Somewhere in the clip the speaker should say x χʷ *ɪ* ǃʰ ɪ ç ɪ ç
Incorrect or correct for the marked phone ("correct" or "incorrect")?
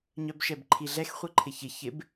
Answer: incorrect